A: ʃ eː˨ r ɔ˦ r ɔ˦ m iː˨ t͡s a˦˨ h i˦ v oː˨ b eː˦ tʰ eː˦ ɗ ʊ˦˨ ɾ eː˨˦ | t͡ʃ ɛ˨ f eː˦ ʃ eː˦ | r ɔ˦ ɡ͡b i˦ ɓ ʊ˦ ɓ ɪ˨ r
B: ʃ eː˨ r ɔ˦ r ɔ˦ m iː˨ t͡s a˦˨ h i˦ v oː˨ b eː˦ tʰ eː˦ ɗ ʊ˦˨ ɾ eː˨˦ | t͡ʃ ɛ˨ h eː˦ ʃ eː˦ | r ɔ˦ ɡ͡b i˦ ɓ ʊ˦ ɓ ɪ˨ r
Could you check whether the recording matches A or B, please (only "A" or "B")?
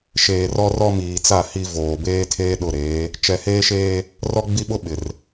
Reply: B